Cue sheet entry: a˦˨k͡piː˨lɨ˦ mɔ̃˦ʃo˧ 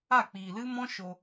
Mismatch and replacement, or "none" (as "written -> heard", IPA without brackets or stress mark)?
none